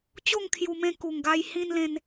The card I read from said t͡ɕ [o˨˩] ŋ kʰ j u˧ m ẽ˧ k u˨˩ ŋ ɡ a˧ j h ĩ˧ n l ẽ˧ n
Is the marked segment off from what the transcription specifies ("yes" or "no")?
yes